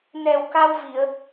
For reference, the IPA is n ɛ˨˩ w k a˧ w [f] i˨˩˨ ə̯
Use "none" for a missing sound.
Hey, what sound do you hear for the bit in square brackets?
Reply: v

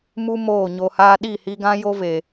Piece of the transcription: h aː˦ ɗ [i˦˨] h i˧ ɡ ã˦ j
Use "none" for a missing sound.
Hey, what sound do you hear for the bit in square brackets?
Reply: i˦˨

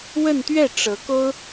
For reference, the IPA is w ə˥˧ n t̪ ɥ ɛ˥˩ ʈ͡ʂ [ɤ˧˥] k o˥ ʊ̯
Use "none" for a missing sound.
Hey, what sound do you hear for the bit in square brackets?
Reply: ɤ˧˥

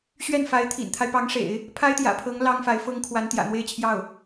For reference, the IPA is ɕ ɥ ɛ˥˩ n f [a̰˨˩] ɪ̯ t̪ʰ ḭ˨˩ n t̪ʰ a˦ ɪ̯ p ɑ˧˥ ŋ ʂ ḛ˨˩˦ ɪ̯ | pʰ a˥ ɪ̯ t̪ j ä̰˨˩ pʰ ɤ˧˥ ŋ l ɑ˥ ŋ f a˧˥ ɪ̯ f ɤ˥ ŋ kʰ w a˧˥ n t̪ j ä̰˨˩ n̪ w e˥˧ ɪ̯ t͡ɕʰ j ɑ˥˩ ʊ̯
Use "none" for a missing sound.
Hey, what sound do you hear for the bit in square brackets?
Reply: a˧˥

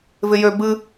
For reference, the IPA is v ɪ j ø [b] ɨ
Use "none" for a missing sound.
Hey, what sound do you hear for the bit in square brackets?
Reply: b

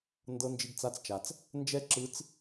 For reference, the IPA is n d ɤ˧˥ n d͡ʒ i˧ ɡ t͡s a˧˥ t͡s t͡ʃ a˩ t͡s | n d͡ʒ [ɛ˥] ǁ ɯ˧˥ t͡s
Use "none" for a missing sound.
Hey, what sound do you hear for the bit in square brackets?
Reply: ɛ˥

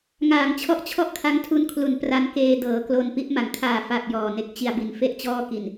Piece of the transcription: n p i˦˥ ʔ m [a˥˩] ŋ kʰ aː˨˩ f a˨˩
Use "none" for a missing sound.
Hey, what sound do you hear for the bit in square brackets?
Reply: a˩˦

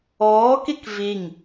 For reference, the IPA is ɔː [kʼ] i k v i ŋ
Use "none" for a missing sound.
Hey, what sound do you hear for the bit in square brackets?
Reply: k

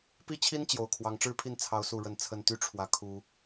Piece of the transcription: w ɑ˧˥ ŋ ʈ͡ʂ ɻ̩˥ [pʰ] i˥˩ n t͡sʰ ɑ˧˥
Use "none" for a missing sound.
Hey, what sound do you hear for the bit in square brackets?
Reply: pʰ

